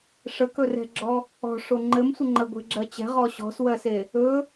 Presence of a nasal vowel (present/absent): absent